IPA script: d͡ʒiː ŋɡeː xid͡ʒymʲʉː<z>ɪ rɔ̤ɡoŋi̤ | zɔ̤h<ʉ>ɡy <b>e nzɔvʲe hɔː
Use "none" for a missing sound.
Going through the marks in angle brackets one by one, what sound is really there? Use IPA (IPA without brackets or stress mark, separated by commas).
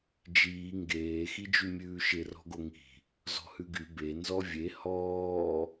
ʃ, ʉ, b